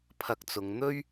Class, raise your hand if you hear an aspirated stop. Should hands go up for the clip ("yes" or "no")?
yes